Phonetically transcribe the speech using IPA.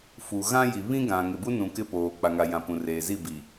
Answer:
f u˨ ɣ ã˦ j i˨ β ĩ˦ ɡ ã˨ ŋ ɪ˨ b u˦ n ũ˨ k ɪ˦ p oː˨ k͡p a˨ ŋ a˨ j ã˨ p ũ˨ r eː˨ z i˦˨ b i˨

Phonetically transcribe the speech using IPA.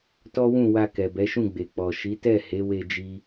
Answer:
t ɔ˦ w ũ˦˨ w a˧ k ɛ˨ b ɛ˨˦ ʃ ũ˦˨ ɡ͡b e˨ k͡p ɔ˨ ʃ i˨˦ t ɛ˦˨ h e˨˦ w e˧ d͡ʒ i˦

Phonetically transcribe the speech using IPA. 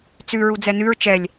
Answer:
t͡s ʉ ɹ u d͡z ɛ n ʉ ɹ t͡ʃ ɛ lʲ

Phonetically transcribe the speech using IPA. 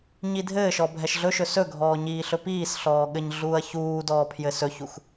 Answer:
ɲ i dʱ ɘː ʃ ɔ bʱ ɛ ʃ ɮ ɵ ʃ ɵ s ɵ ɡʱ ɔː ɲ iː ɬ ɵ p iː s ɬ ɔː ɠ ɘ ɲ ɮ uː ɐ̯ ç uː d ɔː pʰ j ɘ s ɵ ç u x

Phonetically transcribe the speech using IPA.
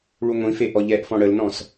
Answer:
ɭ u ŋʷ ĩ f e ʔ ɔ ʎ ɛ ʔ f ɔ̃ ɽ ə l n ɔ̃ s

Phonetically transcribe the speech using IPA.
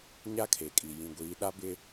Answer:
ɲ a˦ kʰ e˨ kʼ i˨ j ĩ˨ ɡʷ iː˨˦ ɗ a˦ b ɪ˦

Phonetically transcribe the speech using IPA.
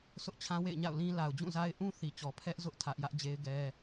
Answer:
s ʊ˦ ʔ t͡ɕʰ ã˦ w ḛ˦˨ ɪ̯ ɲ a̰˦˨ ʊ̯ l ĩ˦ l a˨ ʊ̯ d͡ʑ ũ˦˨ z a˦ ɪ̯ ʔ ũ˦ θ i˨ t͡ɕ ɔ˨ pʰ ɛ˦ ʔ z ʊ˦ ʔ tʰ ä˦ ʔ j ä˦ ʔ d͡ʑ e˦ ɪ̯ ɡ ɛ˦

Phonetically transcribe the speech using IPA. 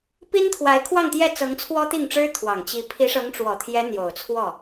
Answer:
p i˥ n t̪ʰ w a˧˥ ɪ̯ kʰ w ɑ˥˧ ŋ t̪ j ɛ˥˩ t͡s ɤ˧˥ ŋ t͡sʰ w ɔ˥ t̪ i˥˩ ŋ ʈ͡ʂ ɻ̩˥ t̪ʰ w ɑ˨˩ ŋ t͡ɕ i˧˥ pʰ i˧˥ ʂ ɤ˧˥ ŋ ʈ͡ʂ w ɔ˨˩ t̪ʰ j ɛ˧˥ n̪ j o˨˩ ʊ̯ t͡sʰ w ɔ˥˩

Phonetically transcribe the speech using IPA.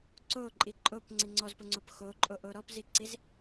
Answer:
ǀ o ǃʼ i ǃʼ o p ŋ͡ǀ i ŋ͡ǀ ɔ z p ʊ ŋ͡ǀ o p x o ǃʼ o ʔ o ɾ ɔ p z i ǀ i z

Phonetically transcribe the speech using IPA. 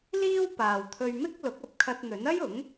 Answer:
l iː˥ w p aː˨ w t̪ʰ ɵ˧ ɥ m ɪ˥ k̚ l ʊ˨˥ k̚ ɐ˧ p̚ kʰ ɐ˧ t̚ n̪ ɵ˨˥ n ɐ˥ j ʊ˨˥ ŋ

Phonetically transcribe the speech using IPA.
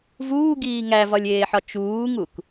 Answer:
v uː ɡ iː ŋ æ v ɒ lʲ eː ħ ɒ t͡ʃ uː ŋ u k

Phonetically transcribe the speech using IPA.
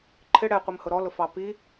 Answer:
ǃʰ ɪ ɽ ɛ qʷ i m h ʊ ɾ ɔ l ʊ f ɑ p i

